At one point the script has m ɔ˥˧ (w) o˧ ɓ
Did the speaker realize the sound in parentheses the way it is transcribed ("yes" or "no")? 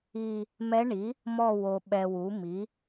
yes